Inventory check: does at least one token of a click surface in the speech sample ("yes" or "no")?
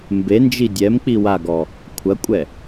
no